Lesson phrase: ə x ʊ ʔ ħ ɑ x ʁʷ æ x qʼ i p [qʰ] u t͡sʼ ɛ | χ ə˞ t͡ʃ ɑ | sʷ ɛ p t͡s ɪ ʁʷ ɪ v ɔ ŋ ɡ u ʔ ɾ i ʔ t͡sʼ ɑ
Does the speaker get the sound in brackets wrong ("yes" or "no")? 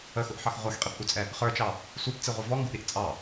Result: yes